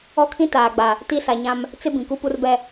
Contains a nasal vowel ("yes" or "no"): yes